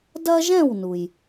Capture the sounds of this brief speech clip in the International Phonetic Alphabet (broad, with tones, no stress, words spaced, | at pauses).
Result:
dɐ˥ʒɛ̃˥˨wnu˩j